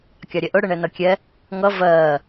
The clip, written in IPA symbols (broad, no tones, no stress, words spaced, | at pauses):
kʲɑɾʲɛʔʊ ɽəɳɛnʌkʲɛ | ŋʌ vɜː